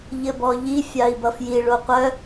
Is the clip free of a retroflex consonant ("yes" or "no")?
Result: no